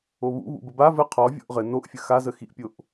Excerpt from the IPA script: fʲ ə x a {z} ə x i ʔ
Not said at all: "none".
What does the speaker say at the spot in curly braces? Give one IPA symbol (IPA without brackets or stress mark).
z